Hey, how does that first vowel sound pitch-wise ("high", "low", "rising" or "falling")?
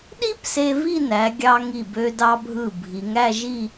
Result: high